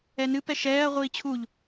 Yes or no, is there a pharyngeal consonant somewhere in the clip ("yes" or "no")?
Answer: no